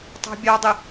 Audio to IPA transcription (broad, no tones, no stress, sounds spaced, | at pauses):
tˤ ɑ̤ bʲ ɑ dˤ ɪ